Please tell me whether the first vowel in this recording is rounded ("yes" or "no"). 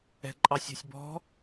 no